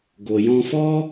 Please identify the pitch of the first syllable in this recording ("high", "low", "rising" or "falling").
low